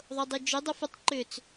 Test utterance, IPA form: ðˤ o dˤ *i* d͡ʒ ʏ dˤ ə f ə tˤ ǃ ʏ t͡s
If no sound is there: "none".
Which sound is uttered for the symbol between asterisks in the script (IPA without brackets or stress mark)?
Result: i